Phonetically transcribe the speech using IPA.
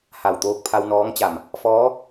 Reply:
h a˧˩ w t̪ oː˧ k̚ pʰ a˧ w n ɔː˧˥ ŋ t͡ɕ a˧˩ m | f ɔː˧˥

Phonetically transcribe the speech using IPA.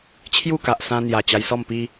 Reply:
t͡ɕʰ j u˥˧ k a˨ ʔ s ã˧ n̪ j a˨˩ t͡ɕ a˧ j s ɔ˥˧ m p i˦

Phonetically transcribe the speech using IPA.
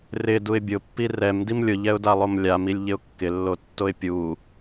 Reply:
r ɪ d u ɪ̯ bʲ ʊ pː i r ɛ m d i m lʲ ʊ ʎ ɛ ʊ̯ d a lˠ o m lʲ a m i lʲ ʎ ɪ ʊ̯ kː ɪ lː o tː o ɪ̯ pʲ u

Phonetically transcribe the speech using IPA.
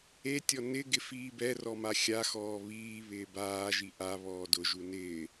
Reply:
e tʲ ɔ n ɪ ɡ ɪ f iː b ɛ r ɔ m a xʲ a x ɔː β iː β ɪː b aː ʒ i ʔ a β ɔː d ʊ ʒ u n ɪː

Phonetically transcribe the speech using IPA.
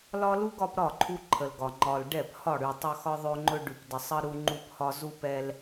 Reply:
l ɒ˦ l u˦ ɡ ɒ˦ p ɾ ɒ˦˨ ǃʰ u˦ ǃʰ ə˨ l ɡ ɒ˨ ŋ͡ǃ ɒ˨ l ɖ ɛ˦˨ p h ɒ˦˨ ɽ ʉ˨ tˤ ɵ˦ x ɒ˦ ðˤ ɵ˦ ŋ͡ǃ ɵ˦ ɖ ʉ˨ p d ə˨ sˤ ə˦ ɾ u˦ ŋ͡ǃ u˦ p h ɒ˦ z u˦ p ɛ˦ l

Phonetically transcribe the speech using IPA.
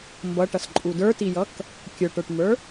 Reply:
m b ʌ ʈ ʌ s ǃʼ u d ə˞ t i j ʌ k | kʲ ə˞ ʈ ə˞ ʈ m ə˞

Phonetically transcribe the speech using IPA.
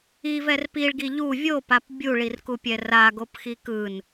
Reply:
i v ɛ r p i ɭ ɡ i ʎ u vʲ o p a p bʲ u ɭ i r k u pʲ ɛ r a ɡ o p x i k ɯ n

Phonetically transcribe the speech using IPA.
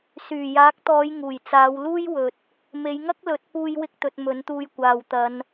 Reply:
s yː˨˩ j aː˨˥ k̚ t̪ ɔː˨˧ j ŋ uː˨˩ j t͡s aː˨˧ w l uː˥ j w ɵ˨ t̚ | m e˨˧ j ŋ ɐ˥ k̚ l ɵ˨˥ t̚ p uː˥ j w ɪ˥ k̚ t̪ ɵ˨˥ t̚ m ɵ˨˥ n t̪ uː˧ j kʷ aː˨ w t̪ ɐ˨˧ n

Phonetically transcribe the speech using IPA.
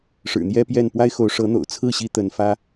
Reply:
ʂ ɻ̩˨˩ n̪ j ɛ˥ p j ɛ˥˩ n p w a˥ ɪ̯ x o˧˥ ʊ̯ ʂ ɤ˧˥ n̪ o̰˨˩ ʊ̯ t͡sʰ ɹ̩˥˩ ɕ i˧˥ t̪ ə˧˥ n f ä˥

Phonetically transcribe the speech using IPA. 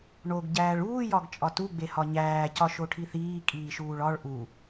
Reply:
ɳ o ɡ ɟ æː ɭ uː j ɒ ɡ t͡ʃʼ ɒ t u ɡ͡b e h ɒ ɲ æː c ɒ ʃ o ʈʰ i θ iː kʼ iː ʃ uː ɭ ɒ ɭ ʔ u

